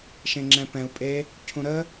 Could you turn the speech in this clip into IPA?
ʃ ẽ ŋ͡ǁ ɛ̃ p ɛ̃ u̯ pʼ e | cʰ ũ ɾ ə

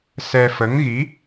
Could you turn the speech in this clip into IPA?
s ɛ˧ f ə˧˥ ŋ ɣ i˧˥

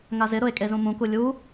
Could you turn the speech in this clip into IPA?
ŋ a z ɪ ɾ ʊ e̯ kʼ e z ũ m ũ k u lʲ u

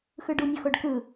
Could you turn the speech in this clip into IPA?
x ɯ ɖ u nʲ o x o ɖ k ɯ

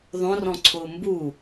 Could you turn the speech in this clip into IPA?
ðˤ õ r ɔ̃ ǀʰ ʊː m b u

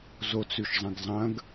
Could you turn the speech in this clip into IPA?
z o t͡s ʉ ʃ zˤ ɐ̃ ɡ zˤ ɐ̃ ɡ

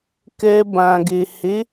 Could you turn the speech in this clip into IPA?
k ɛ˧ b ã˨ ɡ e˨ h e˨˦

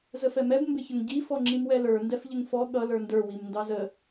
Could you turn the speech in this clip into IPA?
z ə f ɛ m ɛ b m b ɪ ç ə ŋ ɟ i f ɔ ŋ͡ǁ i m w ɛ l ə˞ n d ɛ f ʎ ɪ ŋ f ɔ ɠ ʌ l ə˞ n d ə˞ w i m n d ɑ z ə

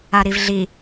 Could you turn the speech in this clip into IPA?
a ɾ i v ɮ i

